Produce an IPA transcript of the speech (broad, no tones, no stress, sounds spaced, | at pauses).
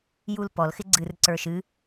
j u l p ɔ l x ɪ ɡ͡ǀ ɨ r ǀ ə˞ ʃ ɨ